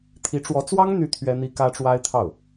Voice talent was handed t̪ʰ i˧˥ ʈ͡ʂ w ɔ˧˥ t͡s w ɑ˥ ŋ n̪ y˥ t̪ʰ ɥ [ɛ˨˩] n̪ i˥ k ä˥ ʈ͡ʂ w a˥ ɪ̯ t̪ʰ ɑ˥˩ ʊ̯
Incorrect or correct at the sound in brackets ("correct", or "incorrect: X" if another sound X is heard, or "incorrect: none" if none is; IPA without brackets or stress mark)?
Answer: incorrect: ɛ˥